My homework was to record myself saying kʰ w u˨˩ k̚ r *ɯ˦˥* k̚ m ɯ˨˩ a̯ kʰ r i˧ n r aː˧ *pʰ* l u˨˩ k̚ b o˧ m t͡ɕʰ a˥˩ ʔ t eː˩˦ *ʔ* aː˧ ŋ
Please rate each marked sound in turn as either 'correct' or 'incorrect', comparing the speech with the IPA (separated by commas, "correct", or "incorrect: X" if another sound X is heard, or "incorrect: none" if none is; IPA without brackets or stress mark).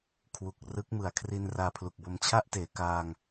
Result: correct, correct, incorrect: k